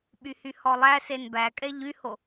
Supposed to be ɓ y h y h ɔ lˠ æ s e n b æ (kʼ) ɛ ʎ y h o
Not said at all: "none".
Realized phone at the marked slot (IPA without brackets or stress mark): kʼ